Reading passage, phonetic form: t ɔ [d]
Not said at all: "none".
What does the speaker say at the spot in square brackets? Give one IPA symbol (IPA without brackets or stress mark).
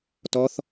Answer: θ